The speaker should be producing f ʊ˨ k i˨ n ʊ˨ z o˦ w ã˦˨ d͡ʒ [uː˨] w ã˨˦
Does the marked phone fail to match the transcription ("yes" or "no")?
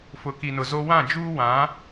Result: yes